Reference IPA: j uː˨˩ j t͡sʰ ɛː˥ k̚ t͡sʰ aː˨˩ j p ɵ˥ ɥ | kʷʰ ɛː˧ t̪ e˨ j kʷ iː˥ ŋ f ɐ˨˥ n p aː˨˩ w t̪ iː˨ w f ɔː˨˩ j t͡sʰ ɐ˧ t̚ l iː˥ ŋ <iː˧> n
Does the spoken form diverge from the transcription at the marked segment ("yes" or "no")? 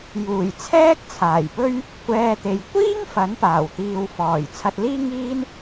yes